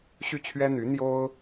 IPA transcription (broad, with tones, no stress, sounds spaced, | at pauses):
ɕ y˥˩ t͡ɕʰ ɥ ɛ˥ n̪ y˧˥ n̪ j o˥ ʊ̯